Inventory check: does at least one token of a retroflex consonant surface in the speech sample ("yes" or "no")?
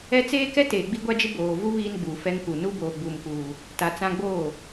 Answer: no